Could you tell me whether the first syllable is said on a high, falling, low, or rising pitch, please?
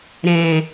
low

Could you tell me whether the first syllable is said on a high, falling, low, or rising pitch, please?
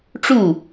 falling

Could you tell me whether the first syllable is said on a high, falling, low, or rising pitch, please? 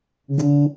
high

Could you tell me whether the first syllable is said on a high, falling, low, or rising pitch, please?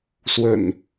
low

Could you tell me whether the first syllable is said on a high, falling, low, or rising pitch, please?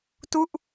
falling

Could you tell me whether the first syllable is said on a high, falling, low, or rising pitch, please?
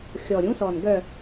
low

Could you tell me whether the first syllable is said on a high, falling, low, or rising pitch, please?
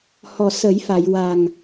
low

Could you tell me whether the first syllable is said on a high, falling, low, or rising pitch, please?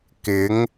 rising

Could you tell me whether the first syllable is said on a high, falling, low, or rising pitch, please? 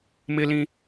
high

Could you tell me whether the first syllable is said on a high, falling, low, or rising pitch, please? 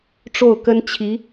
falling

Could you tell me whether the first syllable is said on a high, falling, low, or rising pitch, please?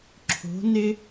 rising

